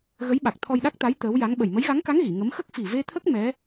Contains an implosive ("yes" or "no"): yes